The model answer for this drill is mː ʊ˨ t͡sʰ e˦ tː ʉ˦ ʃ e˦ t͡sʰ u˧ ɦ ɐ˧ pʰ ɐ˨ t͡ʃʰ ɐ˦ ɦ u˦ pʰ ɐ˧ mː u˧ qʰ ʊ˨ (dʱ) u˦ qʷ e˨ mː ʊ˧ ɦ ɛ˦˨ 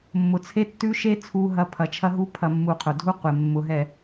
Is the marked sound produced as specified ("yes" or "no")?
yes